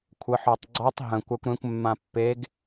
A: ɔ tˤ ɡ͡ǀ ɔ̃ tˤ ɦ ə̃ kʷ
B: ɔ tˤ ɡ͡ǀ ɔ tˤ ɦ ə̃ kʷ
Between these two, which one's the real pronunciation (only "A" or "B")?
B